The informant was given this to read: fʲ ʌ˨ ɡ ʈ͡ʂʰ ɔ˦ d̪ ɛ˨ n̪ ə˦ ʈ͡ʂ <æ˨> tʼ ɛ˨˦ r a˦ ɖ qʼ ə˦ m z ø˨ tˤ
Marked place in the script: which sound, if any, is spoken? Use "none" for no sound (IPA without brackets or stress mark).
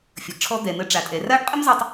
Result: a˨